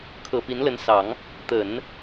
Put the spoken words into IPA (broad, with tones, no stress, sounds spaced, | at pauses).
kʰ ɤ˨˩ p i˧˥ n l ə˧˥ n s ɑ˨˩˦ ŋ | t̪ ə˨˩˦ n